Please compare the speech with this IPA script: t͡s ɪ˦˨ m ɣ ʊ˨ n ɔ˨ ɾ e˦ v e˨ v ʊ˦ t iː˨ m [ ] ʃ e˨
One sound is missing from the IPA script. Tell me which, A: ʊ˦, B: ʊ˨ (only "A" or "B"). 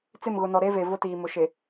B